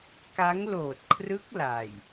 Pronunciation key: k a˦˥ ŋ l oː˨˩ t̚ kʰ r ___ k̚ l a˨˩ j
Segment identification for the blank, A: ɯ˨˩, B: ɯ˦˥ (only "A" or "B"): B